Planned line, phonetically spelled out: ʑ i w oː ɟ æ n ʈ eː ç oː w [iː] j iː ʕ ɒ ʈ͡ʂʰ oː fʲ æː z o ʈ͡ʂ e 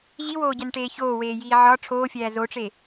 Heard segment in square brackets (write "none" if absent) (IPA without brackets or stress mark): eː